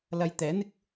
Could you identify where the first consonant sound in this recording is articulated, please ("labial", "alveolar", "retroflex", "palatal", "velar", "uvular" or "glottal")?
alveolar